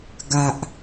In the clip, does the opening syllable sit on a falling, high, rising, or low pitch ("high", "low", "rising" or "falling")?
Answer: low